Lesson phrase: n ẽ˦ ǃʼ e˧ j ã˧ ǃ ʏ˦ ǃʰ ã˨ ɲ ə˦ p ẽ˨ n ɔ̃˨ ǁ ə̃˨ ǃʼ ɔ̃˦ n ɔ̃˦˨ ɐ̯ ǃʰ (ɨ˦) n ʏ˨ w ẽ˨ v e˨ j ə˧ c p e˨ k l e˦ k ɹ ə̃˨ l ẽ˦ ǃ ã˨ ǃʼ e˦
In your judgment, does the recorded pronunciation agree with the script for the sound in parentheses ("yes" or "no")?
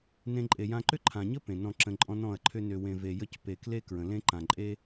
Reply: no